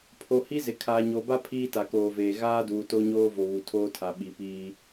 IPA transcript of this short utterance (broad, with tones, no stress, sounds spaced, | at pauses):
pʰ o˨ h i˦ z ɪ˨ kʰ aː˨ ɲ o˨ b a˦ pʰ iː˦ t a˨ k oː˨ v eː˨ ɣ aː˦ d uː˨ t o˦ ɲ oː˦ v o˨ β u˨ tʰ oː˦ tʰ a˨ ɓ i˨ p iː˦